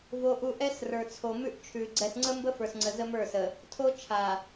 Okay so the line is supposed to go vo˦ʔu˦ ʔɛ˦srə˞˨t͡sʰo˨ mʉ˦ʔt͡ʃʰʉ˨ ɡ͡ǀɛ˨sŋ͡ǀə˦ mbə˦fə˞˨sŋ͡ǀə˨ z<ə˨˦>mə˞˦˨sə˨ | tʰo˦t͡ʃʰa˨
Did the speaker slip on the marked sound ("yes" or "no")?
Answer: yes